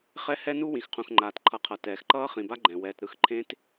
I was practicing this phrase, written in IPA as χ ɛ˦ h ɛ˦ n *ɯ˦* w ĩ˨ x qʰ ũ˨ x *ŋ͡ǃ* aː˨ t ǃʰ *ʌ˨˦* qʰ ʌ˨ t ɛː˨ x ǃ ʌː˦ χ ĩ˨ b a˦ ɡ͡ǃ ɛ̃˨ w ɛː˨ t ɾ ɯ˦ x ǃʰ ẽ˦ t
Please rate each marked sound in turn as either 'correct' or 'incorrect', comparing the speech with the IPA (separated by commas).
incorrect, correct, correct